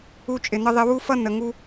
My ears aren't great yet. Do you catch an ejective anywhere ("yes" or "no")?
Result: yes